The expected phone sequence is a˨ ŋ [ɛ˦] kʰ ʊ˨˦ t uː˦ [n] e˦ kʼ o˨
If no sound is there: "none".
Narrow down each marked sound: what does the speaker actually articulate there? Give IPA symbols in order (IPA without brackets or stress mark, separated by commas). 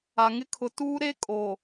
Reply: ɪ˦, ɾ